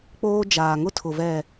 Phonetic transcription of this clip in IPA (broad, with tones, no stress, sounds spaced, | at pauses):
k͡p oː˦ d͡ʒ aː˨ ŋ ʊ˦ tʰ ʊ˨ v ɛ˨